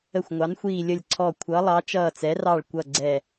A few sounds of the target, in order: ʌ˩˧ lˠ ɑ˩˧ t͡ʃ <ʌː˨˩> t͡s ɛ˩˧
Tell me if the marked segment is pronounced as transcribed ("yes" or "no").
yes